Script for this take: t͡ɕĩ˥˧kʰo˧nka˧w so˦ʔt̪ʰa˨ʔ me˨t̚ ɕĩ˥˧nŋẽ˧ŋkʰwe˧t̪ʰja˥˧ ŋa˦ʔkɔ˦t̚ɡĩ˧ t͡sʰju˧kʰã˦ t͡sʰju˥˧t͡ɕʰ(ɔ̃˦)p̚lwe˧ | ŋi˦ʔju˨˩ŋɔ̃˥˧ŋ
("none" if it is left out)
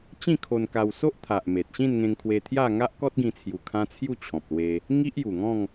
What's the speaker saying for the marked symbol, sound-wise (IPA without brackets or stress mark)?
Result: ɔ̃˨